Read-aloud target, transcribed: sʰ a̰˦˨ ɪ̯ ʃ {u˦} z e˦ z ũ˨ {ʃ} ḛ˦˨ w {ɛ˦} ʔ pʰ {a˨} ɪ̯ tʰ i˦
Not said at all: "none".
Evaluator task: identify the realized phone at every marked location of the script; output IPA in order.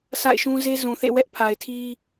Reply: ũ˦, θ, ɛ˦, a˨

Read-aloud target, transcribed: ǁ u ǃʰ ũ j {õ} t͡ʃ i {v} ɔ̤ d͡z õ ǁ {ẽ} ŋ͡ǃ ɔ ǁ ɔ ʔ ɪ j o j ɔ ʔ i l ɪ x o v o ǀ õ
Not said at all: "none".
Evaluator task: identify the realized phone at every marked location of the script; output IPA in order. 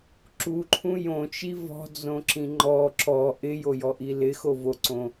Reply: õ, v, ĩ

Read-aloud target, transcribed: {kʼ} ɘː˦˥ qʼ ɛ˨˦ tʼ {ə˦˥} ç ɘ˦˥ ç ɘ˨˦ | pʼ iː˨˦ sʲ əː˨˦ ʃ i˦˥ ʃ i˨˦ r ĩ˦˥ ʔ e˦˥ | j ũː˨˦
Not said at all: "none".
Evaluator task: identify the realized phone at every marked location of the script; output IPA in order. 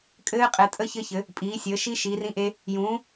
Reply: kʼ, ə˦˥

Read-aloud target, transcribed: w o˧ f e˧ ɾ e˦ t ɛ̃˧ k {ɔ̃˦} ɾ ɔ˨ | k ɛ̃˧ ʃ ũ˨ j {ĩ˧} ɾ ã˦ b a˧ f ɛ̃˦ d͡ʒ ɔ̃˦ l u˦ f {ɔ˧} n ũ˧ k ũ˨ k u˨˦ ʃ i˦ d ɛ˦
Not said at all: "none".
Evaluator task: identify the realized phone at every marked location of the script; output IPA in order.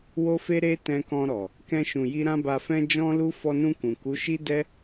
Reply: ɔ̃˧, i˧, ɔ˧

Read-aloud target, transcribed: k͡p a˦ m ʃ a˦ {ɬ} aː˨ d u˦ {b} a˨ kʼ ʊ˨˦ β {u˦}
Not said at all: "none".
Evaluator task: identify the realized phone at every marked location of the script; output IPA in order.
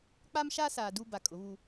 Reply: s, b, u˦

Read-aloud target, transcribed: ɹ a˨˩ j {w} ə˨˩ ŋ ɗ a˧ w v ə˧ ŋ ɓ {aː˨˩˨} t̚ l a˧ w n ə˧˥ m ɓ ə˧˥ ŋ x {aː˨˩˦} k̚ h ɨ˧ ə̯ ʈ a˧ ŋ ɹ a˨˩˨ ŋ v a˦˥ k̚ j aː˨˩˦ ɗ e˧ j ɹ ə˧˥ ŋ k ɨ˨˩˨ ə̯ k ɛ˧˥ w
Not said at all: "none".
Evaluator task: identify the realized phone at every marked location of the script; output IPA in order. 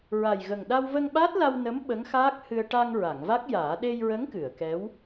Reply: ɣ, aː˦˥, aː˦˥

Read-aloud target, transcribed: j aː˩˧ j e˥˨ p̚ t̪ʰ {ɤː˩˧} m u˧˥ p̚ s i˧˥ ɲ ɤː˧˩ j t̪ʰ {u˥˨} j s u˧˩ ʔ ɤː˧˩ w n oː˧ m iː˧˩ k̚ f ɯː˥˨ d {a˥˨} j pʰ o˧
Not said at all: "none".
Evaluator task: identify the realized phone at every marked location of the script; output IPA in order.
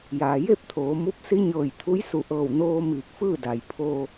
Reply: oː˩˧, u˧˥, a˩

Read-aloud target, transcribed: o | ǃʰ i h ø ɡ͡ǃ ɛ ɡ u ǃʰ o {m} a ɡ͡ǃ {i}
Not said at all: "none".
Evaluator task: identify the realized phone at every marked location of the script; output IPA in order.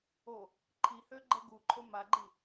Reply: m, i

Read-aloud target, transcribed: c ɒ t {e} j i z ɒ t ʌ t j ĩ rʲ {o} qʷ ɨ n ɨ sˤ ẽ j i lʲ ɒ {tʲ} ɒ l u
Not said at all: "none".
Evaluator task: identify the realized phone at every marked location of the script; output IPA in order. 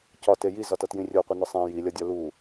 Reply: e, o, dʲ

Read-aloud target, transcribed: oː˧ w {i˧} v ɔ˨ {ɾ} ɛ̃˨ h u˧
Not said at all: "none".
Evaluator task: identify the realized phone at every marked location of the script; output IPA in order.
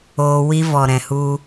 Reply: i˧, ɾ

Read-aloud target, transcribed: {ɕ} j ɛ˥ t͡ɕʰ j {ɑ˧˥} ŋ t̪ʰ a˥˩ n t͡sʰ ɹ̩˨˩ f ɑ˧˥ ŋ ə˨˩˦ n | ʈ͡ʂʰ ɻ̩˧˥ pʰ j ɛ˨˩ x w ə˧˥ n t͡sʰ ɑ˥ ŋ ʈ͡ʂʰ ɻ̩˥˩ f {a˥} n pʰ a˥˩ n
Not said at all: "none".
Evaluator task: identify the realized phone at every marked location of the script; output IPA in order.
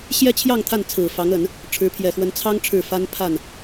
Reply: ɕ, ɑ˥˧, a˥

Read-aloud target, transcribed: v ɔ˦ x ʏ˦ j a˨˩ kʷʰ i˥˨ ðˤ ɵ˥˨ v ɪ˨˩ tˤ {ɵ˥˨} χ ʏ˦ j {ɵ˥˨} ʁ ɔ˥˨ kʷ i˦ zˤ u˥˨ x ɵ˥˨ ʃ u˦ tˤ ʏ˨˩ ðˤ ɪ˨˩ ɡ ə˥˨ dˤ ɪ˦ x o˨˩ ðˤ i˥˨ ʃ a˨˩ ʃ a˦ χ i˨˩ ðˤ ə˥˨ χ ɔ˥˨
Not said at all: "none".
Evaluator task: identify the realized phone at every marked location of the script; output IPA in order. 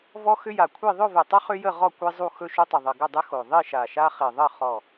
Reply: ɵ˦, ə˥˨

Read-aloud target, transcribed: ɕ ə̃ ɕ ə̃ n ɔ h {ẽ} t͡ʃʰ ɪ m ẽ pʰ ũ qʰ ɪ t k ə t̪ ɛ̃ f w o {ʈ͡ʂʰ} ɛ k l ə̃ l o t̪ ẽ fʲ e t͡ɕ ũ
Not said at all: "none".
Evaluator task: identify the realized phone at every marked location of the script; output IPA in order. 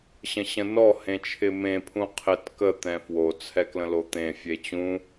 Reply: ẽ, t͡sʰ

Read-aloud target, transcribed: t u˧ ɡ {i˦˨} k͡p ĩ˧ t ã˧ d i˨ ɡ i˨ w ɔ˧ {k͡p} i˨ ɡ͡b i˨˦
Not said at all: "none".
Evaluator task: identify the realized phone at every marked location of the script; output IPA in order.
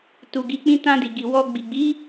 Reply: i˧, ɡ͡b

